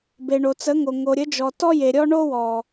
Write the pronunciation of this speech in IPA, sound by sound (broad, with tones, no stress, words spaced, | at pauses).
be˨ɳo˨t͡sə˨˦ŋo˨ ŋo˨ɾʲə˨˦d͡ʒɔ˨ tɔ˦je˨ ɾʲɔ˦ɳo˦wɔ˨